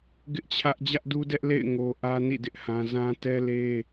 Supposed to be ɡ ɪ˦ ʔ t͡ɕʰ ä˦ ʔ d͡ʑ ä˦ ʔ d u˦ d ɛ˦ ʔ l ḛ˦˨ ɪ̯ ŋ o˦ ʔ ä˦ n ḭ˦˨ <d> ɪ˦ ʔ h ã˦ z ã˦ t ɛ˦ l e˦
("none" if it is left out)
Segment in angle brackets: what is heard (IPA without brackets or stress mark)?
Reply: d